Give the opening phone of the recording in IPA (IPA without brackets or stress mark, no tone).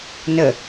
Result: n